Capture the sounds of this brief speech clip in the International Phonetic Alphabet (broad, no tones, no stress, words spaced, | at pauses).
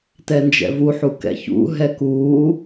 tɛnd͡ʒɛ̰vuħu kɛ̰çṵɦɛ kuː